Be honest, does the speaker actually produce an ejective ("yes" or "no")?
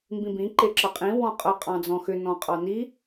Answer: yes